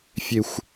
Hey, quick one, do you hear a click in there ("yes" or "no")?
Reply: no